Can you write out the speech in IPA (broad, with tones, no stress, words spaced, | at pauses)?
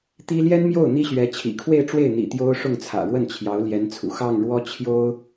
t̪i˥ ljɛ˥nmjo˥˩ʊ̯ n̪i˥ɕɥɛ˧˥ t͡ɕʰḭ˨˩kʰwe˥˧ɪ̯ʈ͡ʂwe˥˩ɪ̯ n̪ḭ˨˩ t̪jo˥ʊ̯ ʂʊ˥˩ŋt͡sʰä̰˨˩ɻwə˥˩n t͡ɕʰjɑ˧˥ʊ̯ljɛ˧˥nt͡sʰṵ˨˩ xɑ˥˩ŋɻwɔ˥ t͡ɕʰjo˥ʊ̯